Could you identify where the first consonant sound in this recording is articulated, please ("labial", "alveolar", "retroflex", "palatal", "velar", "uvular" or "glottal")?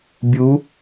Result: labial